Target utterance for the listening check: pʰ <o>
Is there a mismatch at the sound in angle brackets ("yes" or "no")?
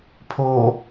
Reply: no